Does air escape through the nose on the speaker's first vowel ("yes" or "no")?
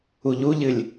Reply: no